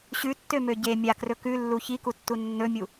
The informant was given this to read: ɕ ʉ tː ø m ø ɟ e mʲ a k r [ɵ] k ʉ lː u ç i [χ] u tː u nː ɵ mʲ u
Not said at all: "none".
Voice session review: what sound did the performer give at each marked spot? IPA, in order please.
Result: ɵ, k

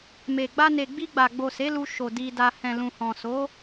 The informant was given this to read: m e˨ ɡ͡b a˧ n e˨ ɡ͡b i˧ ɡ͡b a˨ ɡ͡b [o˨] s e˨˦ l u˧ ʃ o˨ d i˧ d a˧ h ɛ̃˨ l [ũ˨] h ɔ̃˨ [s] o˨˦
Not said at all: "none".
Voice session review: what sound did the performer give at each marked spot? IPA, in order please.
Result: o˨, ũ˨, s

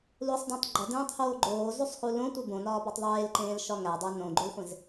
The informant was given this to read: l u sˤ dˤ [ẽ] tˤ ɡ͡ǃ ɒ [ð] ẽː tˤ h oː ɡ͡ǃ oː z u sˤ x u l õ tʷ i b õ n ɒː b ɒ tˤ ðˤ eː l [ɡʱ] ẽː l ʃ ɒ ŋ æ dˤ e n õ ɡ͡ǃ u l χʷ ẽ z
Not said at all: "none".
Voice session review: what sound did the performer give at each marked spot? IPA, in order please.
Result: ẽ, d, ǃ

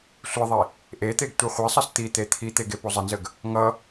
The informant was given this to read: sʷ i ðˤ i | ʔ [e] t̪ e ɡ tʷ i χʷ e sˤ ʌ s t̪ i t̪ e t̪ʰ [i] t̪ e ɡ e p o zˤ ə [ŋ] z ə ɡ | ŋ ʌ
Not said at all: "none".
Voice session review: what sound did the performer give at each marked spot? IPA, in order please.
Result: e, i, n

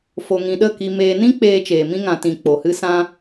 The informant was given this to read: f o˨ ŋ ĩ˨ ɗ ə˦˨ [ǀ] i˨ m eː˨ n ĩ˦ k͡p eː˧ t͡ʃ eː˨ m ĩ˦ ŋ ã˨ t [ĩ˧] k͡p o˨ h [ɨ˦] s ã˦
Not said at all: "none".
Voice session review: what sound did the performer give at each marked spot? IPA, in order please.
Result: k, ĩ˨, ɨ˦

